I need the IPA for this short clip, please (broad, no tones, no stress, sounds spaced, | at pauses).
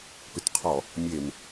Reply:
p ʏ t qʰ ɔ | mʲ e m